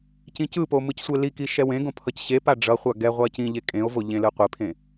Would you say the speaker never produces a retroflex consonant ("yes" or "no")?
no